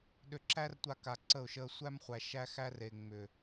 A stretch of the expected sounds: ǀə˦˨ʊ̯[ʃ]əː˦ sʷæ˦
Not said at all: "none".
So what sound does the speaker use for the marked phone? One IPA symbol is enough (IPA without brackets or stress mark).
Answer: ʃ